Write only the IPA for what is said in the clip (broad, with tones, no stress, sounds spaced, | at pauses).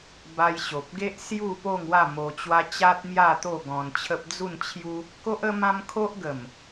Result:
b a˧ j ɕ o˨ p̚ ɡ e˦ ʔ s j u˥˧ p o˥˧ ŋ w a˥˧ m o˧ t͡ɕ w a˦ t͡ɕ a˦ t̚ m j a˥˧ t̪ o˥˧ ɡ ɔ̃˧ n t͡ɕʰ ə˦ p̚ d͡z u˥˧ n t͡ɕʰ j u˦ | k o˦ ʔ ə˦ m ã˦ m kʰ o˦ ʔ ɡ ə˨˩ m